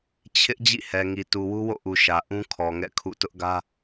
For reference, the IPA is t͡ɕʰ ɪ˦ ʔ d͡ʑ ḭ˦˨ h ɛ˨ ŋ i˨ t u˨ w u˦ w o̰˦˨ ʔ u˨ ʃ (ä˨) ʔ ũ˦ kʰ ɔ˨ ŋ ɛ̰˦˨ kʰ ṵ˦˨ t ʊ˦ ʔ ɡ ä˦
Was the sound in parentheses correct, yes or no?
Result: yes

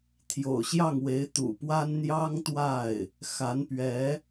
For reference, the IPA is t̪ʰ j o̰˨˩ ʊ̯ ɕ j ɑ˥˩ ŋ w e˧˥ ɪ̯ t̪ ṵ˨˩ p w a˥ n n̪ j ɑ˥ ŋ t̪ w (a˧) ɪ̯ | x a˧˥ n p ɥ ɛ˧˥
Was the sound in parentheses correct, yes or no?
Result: no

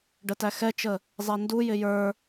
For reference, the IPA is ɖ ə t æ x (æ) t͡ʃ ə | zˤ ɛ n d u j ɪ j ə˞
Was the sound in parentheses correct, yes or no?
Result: no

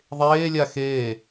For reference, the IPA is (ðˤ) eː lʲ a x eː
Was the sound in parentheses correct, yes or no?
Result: yes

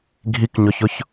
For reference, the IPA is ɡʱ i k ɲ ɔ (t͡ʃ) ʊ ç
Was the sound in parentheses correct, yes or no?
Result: no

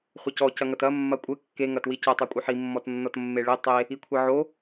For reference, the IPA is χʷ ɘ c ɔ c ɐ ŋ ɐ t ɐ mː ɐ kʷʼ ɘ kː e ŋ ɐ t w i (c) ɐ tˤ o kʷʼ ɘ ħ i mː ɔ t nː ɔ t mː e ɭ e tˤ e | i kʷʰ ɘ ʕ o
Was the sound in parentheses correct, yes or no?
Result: yes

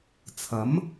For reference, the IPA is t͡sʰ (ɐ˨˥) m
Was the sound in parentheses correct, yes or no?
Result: yes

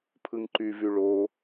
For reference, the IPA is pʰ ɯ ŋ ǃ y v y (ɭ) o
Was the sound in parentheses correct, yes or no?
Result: yes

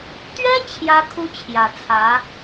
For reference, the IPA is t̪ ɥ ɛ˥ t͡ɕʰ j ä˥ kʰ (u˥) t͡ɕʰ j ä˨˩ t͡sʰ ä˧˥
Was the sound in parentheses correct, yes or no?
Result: yes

